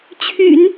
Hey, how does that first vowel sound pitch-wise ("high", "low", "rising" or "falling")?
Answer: low